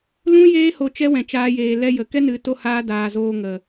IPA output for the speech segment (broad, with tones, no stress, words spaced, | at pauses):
lũ˦ jeː˦ho˧ t͡ʃɛ˦wɛ̃˨t͡ʃaː˧jeː˨ lɛ˧jə˨ kɛ˦nɨ˨˦to˧haː˧ daː˨zoː˧ ŋə˨